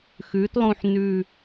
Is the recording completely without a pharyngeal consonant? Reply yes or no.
no